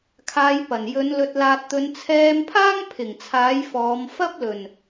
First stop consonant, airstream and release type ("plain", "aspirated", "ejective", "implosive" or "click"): aspirated